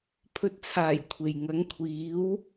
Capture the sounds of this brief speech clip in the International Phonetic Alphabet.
pʰɵ˨t̚t͡sʰaː˨˩j kʷʰe˨j ŋɐ˨˥ŋkʷʰiː˨˥w

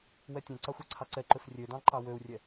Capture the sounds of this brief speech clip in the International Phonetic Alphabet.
wɛtʲɛ̃ǀɑxʷ ɛǀʰɑǀɛǃøf rʲødɑ̃ ǃɑwøu̯rʲɛ

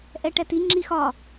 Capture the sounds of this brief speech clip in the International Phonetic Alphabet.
ʔɛʈɛti ŋ͡ǁixɒ

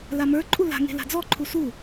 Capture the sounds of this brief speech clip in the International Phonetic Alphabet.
lamə˞ǃʼu la̤ŋe̤ la̤d͡zɔǃʰu su

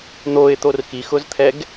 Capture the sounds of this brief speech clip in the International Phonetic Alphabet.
n̪oɪ̯t̪or xixʊzt̪ʰɛɡ

